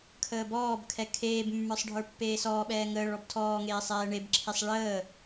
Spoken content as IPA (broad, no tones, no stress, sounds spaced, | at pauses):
kʰ əː b ɔː b kʰ ɛ kʰ eː b mː ə˞ sˤ ɖʱ ə˞ pː eː s ɔː ɓ ɛː ŋ əː ɭ ɔ b tʰ ɔː ŋ eː sˤ ɛː ɳ e b ǁʰ e sˤ ɭ əː